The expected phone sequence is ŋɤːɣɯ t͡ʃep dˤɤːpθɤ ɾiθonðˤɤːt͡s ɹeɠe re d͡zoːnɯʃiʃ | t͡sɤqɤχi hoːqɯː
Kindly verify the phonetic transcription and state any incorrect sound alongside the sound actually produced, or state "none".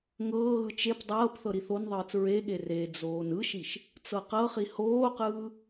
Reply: none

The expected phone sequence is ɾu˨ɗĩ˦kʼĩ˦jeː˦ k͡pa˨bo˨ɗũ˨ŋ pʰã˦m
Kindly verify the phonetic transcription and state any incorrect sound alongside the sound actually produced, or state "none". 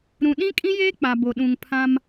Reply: u˨ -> ũ˨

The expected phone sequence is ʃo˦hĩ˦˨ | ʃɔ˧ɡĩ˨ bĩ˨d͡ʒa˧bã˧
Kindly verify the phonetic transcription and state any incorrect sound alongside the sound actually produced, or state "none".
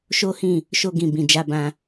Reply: ɔ˧ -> o˧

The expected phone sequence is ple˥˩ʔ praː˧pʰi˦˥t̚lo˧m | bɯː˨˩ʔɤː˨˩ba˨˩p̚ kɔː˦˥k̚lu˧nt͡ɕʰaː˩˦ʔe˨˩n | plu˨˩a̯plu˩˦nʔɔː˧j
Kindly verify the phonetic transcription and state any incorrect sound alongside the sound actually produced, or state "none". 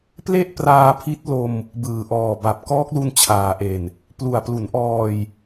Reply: ɤː˨˩ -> ɔː˨˩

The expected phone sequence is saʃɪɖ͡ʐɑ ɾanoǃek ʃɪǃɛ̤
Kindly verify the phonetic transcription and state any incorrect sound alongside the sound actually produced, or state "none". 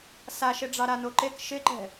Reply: none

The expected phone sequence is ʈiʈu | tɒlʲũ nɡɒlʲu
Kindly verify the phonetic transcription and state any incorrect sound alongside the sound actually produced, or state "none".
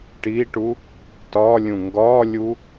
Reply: n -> ŋ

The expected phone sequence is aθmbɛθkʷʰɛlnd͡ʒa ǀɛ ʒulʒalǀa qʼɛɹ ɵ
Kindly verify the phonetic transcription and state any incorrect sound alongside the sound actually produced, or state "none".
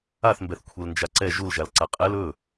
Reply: ɹ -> l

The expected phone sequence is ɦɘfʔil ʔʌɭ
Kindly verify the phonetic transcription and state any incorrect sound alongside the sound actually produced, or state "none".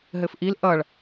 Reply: none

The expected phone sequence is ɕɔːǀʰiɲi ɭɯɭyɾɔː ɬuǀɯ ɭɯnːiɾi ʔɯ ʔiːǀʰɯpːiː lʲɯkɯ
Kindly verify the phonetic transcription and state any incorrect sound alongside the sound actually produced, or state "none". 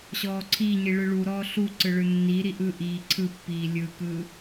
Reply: y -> u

